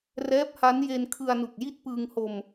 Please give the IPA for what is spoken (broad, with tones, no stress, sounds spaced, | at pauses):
r ɛː˦˥ p̚ h a˦˥ n j e˧ n kʰ ɯ˧ a̯ n u˨˩ k̚ j i˦˥ t̚ p ɯː˧ ŋ h o˧ m